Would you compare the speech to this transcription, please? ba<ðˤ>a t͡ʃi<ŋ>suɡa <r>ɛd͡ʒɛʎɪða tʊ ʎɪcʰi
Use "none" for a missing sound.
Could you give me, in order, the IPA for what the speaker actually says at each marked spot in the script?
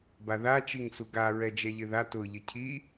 ð, ŋ, ɹ

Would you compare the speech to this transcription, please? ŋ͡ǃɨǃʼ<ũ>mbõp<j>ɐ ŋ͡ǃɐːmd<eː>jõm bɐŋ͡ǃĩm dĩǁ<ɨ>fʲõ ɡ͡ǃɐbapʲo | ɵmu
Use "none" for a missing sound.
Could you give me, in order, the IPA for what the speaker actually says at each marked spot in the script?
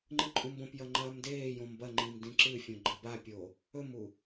ũ, j, eː, ɨ

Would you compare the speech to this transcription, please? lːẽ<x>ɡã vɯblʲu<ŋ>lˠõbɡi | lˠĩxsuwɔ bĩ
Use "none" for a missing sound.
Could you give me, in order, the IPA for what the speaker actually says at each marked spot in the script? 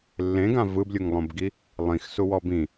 none, ŋ

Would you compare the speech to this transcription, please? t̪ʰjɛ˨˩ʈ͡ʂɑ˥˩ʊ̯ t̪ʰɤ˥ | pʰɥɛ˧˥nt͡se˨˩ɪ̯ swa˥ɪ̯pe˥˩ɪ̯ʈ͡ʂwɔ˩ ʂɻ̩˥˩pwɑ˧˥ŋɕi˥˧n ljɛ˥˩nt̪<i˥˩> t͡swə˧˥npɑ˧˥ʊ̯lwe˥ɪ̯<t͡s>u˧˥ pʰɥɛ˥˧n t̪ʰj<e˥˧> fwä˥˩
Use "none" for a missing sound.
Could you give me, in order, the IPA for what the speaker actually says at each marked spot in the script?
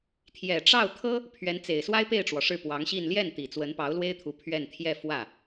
i˨˩, t̪ʰ, ɛ˥˧

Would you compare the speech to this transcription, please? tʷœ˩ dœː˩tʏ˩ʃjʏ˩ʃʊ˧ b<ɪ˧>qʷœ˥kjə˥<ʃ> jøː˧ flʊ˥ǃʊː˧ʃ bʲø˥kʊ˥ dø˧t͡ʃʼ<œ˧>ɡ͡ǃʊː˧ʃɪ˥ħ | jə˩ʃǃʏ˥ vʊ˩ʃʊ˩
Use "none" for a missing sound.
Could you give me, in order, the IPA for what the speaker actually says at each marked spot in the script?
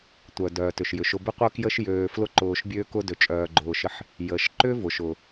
ɪ˥, ʃ, œː˧

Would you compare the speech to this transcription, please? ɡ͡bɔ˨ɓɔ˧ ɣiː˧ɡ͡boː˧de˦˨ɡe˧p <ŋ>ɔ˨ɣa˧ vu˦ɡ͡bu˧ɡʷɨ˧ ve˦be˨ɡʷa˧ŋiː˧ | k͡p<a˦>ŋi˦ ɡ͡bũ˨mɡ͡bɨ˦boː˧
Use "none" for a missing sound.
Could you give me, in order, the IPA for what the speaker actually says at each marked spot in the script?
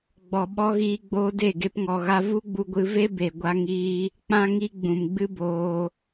ŋ, ã˦

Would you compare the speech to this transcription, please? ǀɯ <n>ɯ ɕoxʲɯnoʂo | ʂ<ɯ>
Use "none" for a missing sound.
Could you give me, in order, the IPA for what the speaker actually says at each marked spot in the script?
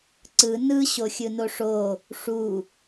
n, u

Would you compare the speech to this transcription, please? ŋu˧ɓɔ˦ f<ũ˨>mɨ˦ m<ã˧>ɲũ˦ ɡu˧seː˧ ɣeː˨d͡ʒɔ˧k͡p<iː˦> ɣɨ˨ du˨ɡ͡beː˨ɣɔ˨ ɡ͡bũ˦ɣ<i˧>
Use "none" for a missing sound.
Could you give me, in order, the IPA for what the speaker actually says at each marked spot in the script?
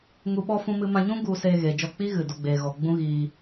ũ˦, ã˧, iː˦, iː˧

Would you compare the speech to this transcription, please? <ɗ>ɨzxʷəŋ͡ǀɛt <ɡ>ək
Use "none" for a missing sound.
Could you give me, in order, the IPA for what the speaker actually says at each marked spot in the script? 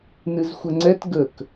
n, ɡ

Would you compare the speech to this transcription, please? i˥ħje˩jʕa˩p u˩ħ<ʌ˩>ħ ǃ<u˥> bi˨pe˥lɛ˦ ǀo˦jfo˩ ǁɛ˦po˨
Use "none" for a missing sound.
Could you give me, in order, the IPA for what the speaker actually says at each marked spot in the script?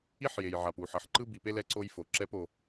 ʌ˩, ɯ˥

